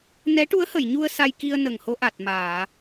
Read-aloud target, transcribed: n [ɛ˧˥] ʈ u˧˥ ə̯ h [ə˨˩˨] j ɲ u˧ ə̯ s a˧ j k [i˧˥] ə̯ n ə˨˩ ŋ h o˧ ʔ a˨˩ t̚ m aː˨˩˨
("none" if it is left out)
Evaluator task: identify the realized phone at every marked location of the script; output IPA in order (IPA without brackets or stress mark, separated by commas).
ɛ˧˥, ə˨˩˨, i˧